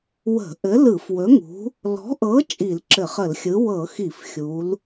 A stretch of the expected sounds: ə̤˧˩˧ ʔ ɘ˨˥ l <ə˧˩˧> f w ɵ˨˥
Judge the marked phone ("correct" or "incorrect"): incorrect